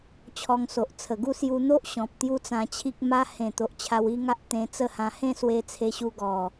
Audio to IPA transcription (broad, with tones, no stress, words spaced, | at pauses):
t͡ɕʰɔ˧ŋso˨ʔ t͡sʰə˨˩ɡu˥˧ sju˧n̪o˦ʔ ɕɔ̃˨p̚ t̪ju˦t͡sã˧t͡ɕʰi˦k̚ ma˧hẽ˨˩t̪o˨ʔ t͡ɕʰa˧wi˦ŋa˦ʔ t̪ẽ˧t͡sə˥˧hã˧ hẽ˥˧swe˧ t͡sʰe˧ɕu˧ ɡɔ˨˩